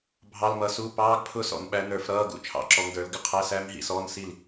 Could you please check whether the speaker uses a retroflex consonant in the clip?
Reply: no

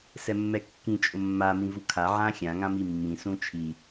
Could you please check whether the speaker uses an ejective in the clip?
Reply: yes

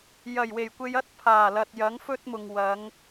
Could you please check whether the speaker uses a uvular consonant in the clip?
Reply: no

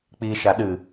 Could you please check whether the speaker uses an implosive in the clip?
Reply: yes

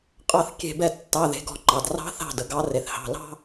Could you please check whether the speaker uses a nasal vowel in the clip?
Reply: no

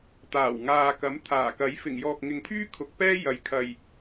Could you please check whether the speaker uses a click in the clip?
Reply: no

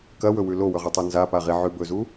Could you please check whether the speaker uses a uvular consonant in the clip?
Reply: yes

